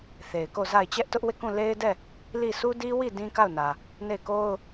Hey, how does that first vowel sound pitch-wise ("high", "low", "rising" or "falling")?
low